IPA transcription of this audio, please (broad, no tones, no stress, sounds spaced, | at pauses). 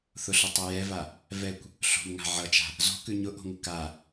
θ ʊ ɬ ʊ tˤ ʉ j ɛ v a | v ɛ kʷ | ɬ o̤ m ŋ a̤ ʕ ʌ t͡ʃ a̤ | z o̤ k ʉ ɲ ʊ ʔ o̤ ŋ ʊ k a